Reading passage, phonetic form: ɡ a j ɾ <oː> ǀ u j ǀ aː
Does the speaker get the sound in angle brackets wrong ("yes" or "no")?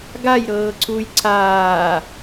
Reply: yes